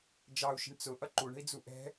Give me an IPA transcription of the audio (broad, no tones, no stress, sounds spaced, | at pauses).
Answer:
d͡ʒ ɑ u̯ ʃ ə̤ ɳ t͡s ʊ ʔ ʌ ǃ u ɳ ə̤ i̯ d͡z u ʔ ɛ̤